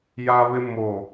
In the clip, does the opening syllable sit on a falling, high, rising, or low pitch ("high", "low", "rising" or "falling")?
high